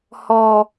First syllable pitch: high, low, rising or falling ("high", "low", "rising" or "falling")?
low